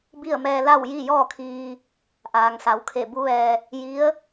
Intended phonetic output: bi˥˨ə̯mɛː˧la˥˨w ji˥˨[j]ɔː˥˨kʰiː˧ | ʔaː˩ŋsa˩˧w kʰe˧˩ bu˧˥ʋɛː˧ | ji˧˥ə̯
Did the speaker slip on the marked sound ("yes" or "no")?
no